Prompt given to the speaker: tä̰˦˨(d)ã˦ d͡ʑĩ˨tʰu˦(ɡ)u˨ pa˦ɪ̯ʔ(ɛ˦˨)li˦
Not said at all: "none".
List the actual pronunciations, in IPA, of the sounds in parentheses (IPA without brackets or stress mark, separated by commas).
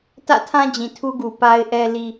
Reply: tʰ, ɡ, ɛ˦